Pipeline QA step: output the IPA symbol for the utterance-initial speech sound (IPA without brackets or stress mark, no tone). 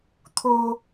t̪ʰ